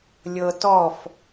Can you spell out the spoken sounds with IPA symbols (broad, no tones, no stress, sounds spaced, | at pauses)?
lʲ ɤ t ɔ f